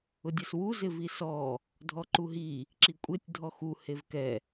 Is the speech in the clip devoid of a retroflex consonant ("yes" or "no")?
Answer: yes